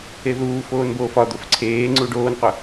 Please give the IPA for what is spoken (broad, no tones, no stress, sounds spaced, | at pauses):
e ð uː f oː n b oː f ɒ d̪ o f ǀʰ eː ŋ͡ǀ u ɖ oː n qʷ ə˞